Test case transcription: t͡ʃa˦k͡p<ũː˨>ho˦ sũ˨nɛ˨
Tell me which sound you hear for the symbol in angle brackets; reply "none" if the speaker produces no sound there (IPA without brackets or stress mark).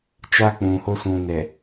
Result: ũ˨